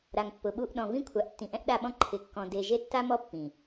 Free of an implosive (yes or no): no